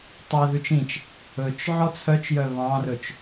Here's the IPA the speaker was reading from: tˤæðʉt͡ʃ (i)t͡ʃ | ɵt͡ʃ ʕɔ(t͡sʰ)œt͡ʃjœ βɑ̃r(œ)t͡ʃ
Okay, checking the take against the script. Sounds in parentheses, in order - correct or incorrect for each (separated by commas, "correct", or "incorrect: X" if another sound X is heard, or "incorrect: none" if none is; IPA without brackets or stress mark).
incorrect: ĩ, correct, incorrect: ɵ